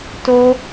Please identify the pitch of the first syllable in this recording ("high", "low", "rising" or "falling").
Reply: high